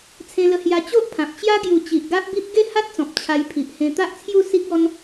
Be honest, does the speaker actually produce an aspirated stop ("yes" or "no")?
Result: yes